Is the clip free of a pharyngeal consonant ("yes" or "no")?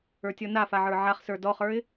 no